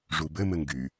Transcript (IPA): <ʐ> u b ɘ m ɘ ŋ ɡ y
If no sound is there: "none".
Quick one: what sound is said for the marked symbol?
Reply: ʐ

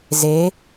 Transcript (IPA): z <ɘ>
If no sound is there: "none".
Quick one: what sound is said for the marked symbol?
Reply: e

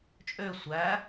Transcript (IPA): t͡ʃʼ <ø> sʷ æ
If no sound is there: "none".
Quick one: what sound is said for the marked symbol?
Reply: ø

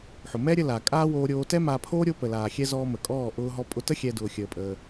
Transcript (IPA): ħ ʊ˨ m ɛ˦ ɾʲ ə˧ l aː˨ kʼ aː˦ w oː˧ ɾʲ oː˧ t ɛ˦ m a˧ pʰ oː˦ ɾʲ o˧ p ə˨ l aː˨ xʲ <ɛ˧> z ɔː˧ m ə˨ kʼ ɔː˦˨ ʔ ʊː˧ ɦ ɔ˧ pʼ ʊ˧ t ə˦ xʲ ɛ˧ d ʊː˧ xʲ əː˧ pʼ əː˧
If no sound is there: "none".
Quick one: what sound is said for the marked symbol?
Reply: ɛ˧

